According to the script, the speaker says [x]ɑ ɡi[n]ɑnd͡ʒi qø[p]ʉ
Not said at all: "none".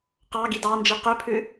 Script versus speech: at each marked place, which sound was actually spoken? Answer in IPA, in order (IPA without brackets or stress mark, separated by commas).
q, d, pʰ